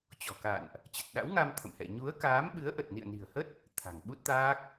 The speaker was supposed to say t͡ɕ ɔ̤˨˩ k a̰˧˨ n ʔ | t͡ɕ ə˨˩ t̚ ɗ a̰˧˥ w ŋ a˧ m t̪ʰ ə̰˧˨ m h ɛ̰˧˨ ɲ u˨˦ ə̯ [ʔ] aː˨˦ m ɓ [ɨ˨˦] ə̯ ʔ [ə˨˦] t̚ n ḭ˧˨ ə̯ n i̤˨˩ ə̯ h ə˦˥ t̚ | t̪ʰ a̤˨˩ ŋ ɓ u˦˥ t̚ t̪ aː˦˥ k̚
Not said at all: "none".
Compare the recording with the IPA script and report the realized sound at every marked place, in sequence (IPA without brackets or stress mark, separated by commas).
k, ɨ˨˦, ə˨˩